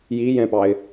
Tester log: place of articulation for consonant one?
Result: palatal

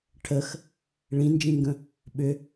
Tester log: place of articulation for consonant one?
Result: retroflex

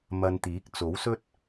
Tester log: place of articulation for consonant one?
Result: labial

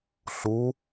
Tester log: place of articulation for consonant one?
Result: alveolar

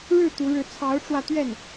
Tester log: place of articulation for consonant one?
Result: retroflex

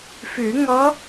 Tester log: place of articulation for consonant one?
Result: labial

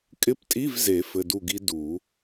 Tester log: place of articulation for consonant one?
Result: velar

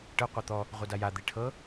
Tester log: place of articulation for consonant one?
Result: retroflex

